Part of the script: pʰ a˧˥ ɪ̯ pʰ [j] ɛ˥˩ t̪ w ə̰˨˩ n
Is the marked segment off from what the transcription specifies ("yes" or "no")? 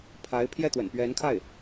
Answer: no